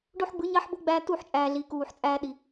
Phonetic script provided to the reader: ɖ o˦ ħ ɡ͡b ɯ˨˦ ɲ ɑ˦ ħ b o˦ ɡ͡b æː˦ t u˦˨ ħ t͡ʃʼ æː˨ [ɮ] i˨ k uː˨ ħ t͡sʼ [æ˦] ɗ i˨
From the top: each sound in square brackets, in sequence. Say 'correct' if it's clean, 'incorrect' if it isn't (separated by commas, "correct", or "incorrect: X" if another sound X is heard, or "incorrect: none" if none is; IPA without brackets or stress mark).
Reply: correct, incorrect: æː˦